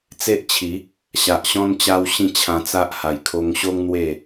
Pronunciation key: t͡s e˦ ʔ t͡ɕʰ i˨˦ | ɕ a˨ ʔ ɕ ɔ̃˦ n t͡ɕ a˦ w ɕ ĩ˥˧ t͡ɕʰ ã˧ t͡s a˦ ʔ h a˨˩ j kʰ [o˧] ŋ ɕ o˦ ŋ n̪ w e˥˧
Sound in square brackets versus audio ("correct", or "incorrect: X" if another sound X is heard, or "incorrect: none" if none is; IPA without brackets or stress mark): correct